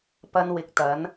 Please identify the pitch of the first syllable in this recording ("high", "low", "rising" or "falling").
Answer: high